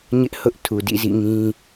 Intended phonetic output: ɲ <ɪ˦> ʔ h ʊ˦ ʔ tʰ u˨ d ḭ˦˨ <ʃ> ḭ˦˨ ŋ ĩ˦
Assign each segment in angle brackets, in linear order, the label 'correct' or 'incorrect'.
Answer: correct, incorrect

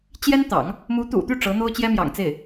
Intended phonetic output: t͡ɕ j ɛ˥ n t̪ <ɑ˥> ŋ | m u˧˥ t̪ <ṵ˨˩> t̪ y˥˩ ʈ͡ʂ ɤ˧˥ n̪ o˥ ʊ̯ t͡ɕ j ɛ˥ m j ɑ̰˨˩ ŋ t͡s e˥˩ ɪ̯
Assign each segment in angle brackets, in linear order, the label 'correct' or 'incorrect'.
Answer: incorrect, correct

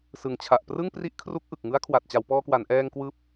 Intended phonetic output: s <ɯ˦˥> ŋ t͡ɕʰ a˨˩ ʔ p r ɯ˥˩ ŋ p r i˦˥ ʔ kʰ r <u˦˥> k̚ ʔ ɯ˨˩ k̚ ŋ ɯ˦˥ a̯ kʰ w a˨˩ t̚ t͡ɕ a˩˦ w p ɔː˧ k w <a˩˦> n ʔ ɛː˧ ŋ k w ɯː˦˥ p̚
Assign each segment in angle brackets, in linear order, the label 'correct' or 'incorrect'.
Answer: incorrect, correct, correct

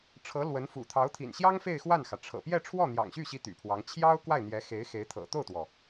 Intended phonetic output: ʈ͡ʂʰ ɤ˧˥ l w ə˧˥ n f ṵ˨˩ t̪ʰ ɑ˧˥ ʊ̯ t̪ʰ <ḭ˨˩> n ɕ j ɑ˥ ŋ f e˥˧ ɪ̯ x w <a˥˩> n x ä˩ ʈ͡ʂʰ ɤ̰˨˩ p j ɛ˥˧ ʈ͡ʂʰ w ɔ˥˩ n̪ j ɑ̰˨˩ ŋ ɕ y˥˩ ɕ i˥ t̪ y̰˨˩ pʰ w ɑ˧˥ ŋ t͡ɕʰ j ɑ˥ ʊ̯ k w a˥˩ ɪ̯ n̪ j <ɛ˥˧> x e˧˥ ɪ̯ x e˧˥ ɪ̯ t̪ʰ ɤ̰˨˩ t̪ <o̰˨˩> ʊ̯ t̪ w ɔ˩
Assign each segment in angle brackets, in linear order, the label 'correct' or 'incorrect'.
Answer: correct, correct, incorrect, incorrect

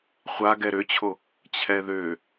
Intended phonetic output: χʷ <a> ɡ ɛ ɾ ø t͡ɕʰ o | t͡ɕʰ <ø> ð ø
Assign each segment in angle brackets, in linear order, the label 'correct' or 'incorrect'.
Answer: correct, incorrect

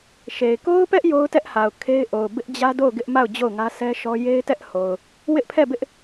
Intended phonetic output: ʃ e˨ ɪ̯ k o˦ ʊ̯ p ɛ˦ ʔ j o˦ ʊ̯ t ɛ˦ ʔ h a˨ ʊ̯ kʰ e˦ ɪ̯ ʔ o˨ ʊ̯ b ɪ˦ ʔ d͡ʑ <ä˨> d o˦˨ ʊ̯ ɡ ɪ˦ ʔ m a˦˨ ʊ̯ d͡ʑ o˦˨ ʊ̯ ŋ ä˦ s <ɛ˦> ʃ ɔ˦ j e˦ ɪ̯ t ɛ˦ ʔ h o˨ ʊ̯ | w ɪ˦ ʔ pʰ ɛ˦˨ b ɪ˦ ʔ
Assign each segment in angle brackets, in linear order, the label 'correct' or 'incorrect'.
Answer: incorrect, correct

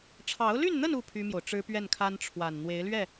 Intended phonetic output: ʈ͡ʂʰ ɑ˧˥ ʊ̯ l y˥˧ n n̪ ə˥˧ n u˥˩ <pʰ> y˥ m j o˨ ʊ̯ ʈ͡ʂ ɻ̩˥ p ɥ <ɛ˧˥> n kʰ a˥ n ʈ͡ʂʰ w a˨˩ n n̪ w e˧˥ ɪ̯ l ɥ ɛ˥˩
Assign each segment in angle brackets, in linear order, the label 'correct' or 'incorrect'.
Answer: correct, incorrect

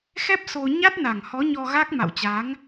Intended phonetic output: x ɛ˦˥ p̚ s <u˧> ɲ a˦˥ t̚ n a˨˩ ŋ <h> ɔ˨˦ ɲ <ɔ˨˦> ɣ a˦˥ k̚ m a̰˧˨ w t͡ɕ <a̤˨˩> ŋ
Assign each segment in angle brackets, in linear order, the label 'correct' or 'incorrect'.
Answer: incorrect, correct, incorrect, incorrect

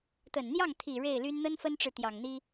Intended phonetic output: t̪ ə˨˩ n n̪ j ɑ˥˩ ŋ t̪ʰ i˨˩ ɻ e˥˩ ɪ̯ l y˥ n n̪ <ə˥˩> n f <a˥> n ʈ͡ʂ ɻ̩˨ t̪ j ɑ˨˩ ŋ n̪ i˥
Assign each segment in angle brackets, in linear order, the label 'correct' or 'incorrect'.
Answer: incorrect, incorrect

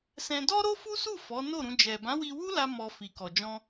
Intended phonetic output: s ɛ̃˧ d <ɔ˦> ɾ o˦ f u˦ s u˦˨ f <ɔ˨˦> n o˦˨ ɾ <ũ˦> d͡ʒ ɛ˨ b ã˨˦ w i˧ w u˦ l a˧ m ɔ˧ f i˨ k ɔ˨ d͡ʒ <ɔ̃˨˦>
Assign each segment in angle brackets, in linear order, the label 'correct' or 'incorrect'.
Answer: correct, correct, incorrect, incorrect

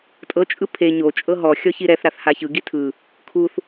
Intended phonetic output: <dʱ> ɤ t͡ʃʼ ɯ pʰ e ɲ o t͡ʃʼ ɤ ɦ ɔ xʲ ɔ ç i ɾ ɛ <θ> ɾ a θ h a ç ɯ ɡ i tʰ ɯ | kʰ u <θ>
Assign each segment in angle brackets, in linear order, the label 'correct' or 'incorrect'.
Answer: incorrect, correct, correct

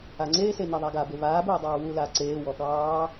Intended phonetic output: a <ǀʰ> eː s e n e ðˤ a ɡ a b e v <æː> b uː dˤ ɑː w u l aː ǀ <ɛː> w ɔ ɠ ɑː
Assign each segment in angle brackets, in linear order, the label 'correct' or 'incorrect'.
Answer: incorrect, incorrect, incorrect

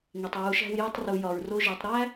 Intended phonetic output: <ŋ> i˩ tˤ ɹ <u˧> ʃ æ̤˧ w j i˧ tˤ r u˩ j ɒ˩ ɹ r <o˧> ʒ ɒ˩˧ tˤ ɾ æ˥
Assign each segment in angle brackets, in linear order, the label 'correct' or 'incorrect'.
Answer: correct, incorrect, correct

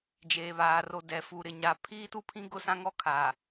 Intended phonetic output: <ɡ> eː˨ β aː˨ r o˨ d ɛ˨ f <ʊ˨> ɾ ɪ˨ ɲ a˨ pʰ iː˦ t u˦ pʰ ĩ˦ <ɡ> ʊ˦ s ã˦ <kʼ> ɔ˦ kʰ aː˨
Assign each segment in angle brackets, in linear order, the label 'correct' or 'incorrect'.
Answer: incorrect, incorrect, correct, incorrect

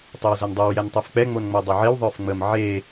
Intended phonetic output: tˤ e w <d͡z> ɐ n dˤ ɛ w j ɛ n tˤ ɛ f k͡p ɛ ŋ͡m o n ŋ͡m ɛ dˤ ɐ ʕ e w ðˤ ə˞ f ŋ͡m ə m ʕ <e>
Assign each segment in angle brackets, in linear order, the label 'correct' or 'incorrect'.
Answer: incorrect, correct

